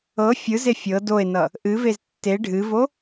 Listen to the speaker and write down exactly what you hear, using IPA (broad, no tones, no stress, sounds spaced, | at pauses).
ɤ fʲ ɯ z e fʲ ɤ d o e̯ n ʌ | ʔ ɨ v e z tː e ɖʱ ɨ v o